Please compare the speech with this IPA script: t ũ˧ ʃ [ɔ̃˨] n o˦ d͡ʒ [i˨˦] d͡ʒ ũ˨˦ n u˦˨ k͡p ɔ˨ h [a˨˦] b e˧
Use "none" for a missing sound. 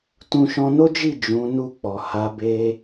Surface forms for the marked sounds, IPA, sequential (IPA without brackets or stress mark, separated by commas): ɔ̃˧, i˦˨, a˨˦